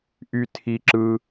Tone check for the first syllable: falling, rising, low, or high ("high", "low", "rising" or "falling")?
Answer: high